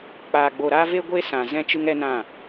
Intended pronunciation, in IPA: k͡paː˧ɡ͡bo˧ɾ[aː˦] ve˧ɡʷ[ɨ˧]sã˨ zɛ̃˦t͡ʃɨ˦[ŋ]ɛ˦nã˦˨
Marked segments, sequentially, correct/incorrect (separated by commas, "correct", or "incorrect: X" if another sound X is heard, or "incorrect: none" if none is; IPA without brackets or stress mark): correct, incorrect: e˧, correct